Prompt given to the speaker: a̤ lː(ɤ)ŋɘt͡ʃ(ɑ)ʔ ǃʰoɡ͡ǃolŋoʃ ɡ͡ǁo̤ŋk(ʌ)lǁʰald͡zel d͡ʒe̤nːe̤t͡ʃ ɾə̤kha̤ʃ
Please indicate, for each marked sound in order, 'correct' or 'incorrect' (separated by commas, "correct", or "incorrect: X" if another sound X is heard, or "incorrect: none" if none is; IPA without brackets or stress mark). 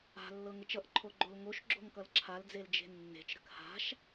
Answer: correct, incorrect: ʌ, correct